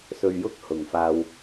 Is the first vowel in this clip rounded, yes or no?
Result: yes